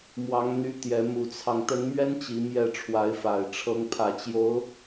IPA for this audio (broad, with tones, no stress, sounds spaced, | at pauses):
m w ɑ˧˥ ŋ n̪ y˧˥ t̪ j ɛ˧˥ m u˧˥ t͡sʰ ɑ˧ ŋ t̪ ə˧˥ n m ɥ ɛ˥ n t͡ɕ i˧˥ m j ɛ˥˩ ʈ͡ʂʰ w a˧˥ ɪ̯ f a˨˩ ɪ̯ ʈ͡ʂʰ ɤ˧˥ ŋ pʰ ä˨˩ t͡ɕ j o˧˥ ʊ̯